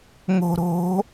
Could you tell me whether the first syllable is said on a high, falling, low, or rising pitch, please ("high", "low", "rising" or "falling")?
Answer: low